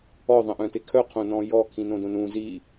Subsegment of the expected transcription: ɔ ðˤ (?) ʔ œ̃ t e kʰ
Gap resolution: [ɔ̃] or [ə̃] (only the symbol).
ə̃